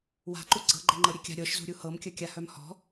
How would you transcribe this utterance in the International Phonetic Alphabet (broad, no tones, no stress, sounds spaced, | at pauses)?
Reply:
w a̤ ǃ u ɡ͡ǀ ɤ ɡ͡ǃ ɛ ŋ͡ǃ ɤ ɾʲ e kʲ a̤ ɾʲ ɤ ʃ z ṳ ɾʲ u h ɤ m kʲ œ kʲ a h œ m h ɔ̤